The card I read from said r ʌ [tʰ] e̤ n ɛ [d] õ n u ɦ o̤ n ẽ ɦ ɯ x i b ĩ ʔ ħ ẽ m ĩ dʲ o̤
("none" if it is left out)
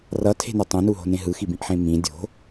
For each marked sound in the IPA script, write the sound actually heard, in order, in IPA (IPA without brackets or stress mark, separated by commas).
tʰ, tˤ